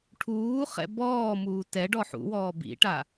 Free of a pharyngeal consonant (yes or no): no